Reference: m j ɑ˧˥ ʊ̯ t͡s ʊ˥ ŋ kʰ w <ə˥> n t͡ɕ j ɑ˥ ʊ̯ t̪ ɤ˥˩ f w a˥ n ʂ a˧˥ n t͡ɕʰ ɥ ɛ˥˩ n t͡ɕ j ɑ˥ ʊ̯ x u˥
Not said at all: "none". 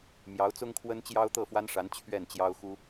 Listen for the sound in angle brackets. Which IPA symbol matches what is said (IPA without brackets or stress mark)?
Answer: ə˥